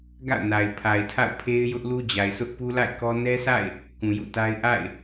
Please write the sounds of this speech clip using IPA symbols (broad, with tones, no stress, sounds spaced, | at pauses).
ɡ a̰˦˨ ʊ̯ n a˨ ɪ̯ pʰ a˨ ɪ̯ tʰ a̰˦˨ ʊ̯ pʰ e˦ ɪ̯ j ʊ˦ ʔ l u˦ d͡ʑ a˨ ɪ̯ sʰ ʊ˦ ʔ p u˦ l a̰˦˨ ɪ̯ k ɔ˦ n ɛ˦ s a̰˦˨ ɪ̯ | k ũ˨ j ṵ˦˨ t a˦ ɪ̯ ʔ a̰˦˨ ɪ̯